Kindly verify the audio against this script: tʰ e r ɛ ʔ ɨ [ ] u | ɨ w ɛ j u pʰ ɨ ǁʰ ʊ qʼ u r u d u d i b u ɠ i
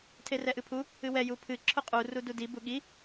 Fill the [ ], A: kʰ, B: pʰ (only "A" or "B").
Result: B